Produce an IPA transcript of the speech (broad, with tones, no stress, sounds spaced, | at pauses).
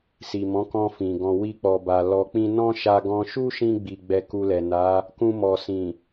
s i˨ m ɔ̃˨˦ k ɔ̃˧ f ĩ˨ ɡ ɔ̃˨ w i˧ k͡p ɔ˨ b a˨ l ɔ˧ k͡p ĩ˦ n ɔ̃˦ ʃ a˧ ɡ ɔ̃˧ ʃ u˦ ʃ ĩ˧ ɡ͡b i˨ ɡ͡b ɛ˨ k u˧ l ɛ˨ n a˨˦ | k ũ˧ m ɔ˨ s ĩ˨